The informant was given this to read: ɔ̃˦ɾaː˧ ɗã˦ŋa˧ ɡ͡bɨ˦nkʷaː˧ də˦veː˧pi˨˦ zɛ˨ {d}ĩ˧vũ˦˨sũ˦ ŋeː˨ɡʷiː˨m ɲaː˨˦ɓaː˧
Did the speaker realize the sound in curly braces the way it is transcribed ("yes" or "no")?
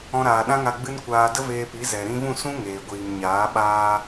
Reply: no